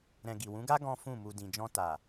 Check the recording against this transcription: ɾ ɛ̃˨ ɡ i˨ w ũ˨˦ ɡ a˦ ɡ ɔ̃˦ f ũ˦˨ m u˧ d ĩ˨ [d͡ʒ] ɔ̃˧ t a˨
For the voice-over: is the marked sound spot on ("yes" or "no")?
yes